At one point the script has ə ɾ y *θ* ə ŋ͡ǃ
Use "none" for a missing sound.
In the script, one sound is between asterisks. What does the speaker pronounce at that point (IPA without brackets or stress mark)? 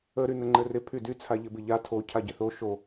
n